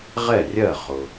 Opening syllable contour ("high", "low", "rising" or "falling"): falling